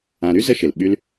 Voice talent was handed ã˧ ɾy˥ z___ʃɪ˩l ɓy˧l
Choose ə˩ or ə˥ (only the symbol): ə˥